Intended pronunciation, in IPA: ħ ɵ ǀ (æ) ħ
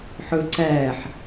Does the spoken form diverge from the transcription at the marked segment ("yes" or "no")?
no